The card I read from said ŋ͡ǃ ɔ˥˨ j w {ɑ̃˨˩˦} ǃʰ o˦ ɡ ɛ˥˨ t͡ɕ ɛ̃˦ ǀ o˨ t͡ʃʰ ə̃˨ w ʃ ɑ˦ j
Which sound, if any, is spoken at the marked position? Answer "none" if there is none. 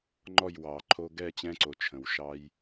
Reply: ɑ˨˩˦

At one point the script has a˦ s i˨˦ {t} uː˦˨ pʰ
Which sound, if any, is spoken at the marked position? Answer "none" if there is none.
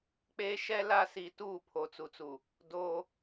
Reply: t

